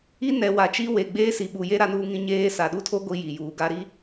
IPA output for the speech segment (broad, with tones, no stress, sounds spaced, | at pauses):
i˦ n ɛ˨ w a˨˦ t͡ʃ i˦ w e˨ ɡ͡b eː˦ s i˨ ɓ u˨ j e˦ ɾ a˦ n uː˦ ŋ ĩ˦ ɲ eː˦ s a˨ ɗ u˦ tʰ o˦ ɡʷ i˦ j i˨ j uː˨ ɡ a˦ ɾ i˦